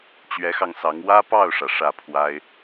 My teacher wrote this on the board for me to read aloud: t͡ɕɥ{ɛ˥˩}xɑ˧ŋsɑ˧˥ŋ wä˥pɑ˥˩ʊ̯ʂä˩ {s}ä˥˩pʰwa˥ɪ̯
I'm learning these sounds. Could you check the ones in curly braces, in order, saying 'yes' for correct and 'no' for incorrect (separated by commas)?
no, no